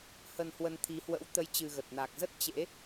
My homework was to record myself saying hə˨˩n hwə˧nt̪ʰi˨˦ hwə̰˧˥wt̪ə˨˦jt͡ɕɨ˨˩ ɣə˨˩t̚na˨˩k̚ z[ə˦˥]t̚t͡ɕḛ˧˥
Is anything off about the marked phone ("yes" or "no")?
no